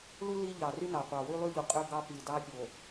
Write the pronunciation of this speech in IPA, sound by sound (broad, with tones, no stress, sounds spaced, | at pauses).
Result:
l u˦ l i˦ ʎ ɑ˨ r y˦ n ɑ˨ qʷ ɑ˨ w y˦ lˠ y˦ ʎ u˨ qʼ ø˦ ɡ ɑ˦ p i˨ d ɑ˦ pʲ o˨